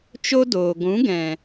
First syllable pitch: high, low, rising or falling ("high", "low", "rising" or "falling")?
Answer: high